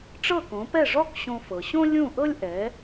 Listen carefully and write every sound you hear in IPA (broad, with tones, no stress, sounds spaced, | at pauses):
ʈ͡ʂ ɤ˥˩ k õ˩˥ p ɛ˥˩ ʐ ɔ˥ k ɕ õ˧ f ɤ˩ ɕ õ˥ lʲ ũ˥˩ ʔ ɤ˥ lʲ ʔ ɛ˩˥